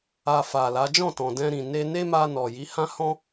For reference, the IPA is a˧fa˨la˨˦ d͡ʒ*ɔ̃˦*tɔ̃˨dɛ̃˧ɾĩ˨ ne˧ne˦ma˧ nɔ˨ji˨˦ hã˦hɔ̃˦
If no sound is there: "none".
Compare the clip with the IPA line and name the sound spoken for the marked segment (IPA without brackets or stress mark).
ɔ̃˦˨